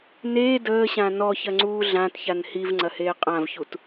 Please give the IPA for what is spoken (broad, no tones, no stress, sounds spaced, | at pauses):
n eː d əː ɕ ã n ɔ ç ɐ ŋ͡ǀ uː ɮ ã t ç a n h i v ŋ͡ǀ ɐ h eː qʼ ã v ç u t